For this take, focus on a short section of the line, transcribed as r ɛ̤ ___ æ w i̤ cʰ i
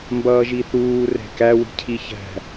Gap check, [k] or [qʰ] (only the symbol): k